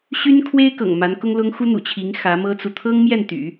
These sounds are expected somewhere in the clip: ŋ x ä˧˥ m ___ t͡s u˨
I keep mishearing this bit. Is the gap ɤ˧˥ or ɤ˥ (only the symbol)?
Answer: ɤ˥